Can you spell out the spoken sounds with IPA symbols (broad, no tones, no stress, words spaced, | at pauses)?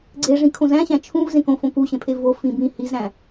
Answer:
ɡ͡ǀeʐĩ kʰõzæ̃ɕæ̃ t͡ʃʰũv zẽkõ fõkuɕẽpʰe vofĩ bĩ hizɾæ̃